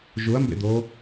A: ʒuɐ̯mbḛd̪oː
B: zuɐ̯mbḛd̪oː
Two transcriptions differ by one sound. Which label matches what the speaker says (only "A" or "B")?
A